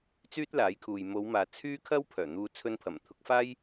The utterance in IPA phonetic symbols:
t͡s yː˥ t̚ l aː˨˥ j kʰ uː˨ j m o˨˧ w m aː˨ t͡sʰ yː˥ kʰ ɐ˥ w pʰ œː˨˩ n̪ uː˨˧ t͡sʰ ɵ˧ n pʰ ɐ˨˩ m t̪ʰ ʊ˨˥ k̚ f aː˥ j

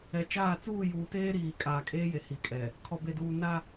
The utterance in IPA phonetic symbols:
ɛ˨ t͡ʃ aː˦˨ t͡s uː˦˨ j uː˨ t eː˦ ɾ iː˨ kʼ aː˨ kʼ eː˦ j e˨ h i˨ kʼ ɛ˨ | kʰ ɔ˨ b e˨ d uː˨ n a˦

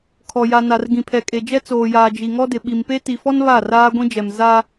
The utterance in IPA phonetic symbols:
kʰ ɔ˨ j a˨ n a˨ r ɡ ĩ˨ pʰ ɛ˨ kʼ e˨ d͡ʒ ɛ˦ t͡s oː˨ j aː˨ d͡ʒ i˨ ŋ ɔ˦ d ɪ˨ ɓ i˨ m p e˦ t i˨ f ɔ˦ n β a˦˨ r aː˦ ɡʷ ĩ˦ d͡ʒ ɛ˨ m z a˦

